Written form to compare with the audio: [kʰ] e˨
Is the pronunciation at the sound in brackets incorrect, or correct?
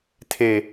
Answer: incorrect: tʰ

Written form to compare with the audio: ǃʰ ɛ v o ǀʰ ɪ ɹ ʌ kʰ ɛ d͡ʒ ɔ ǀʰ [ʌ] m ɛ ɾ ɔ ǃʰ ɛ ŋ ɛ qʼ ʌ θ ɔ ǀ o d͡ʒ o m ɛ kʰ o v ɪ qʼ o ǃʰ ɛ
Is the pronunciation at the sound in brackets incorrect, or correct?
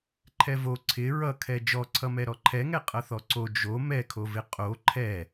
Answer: correct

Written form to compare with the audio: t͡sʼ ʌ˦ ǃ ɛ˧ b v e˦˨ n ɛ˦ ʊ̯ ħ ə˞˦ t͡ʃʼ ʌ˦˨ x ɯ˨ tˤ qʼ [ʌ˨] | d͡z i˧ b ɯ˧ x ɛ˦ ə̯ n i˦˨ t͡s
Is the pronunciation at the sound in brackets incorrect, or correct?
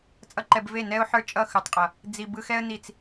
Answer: correct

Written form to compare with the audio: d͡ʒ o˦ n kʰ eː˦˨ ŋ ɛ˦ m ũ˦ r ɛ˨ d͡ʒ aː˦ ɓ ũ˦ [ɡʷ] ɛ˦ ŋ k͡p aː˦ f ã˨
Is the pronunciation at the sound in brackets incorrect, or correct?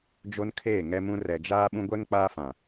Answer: correct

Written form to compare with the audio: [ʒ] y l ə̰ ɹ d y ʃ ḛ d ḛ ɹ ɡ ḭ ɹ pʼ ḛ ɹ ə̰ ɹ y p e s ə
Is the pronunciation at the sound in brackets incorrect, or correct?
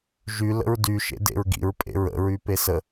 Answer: correct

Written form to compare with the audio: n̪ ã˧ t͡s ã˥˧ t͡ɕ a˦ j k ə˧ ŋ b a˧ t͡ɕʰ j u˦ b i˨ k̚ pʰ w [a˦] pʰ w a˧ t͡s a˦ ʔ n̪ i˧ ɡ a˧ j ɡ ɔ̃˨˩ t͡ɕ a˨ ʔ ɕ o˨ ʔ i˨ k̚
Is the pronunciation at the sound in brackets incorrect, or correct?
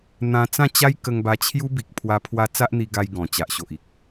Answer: incorrect: a˧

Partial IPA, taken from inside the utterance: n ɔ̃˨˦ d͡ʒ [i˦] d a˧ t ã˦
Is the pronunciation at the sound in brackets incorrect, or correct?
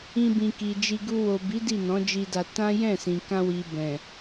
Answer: incorrect: i˧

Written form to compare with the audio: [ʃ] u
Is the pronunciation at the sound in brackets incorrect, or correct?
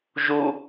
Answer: incorrect: ʒ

